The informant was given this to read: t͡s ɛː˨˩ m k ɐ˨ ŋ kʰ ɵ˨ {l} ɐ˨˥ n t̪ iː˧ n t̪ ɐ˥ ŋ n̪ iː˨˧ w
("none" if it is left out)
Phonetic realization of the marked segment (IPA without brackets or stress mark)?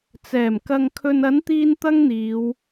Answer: n